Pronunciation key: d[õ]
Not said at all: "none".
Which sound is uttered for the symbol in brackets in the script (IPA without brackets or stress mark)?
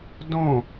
õ